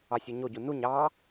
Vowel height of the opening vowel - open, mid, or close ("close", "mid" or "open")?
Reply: open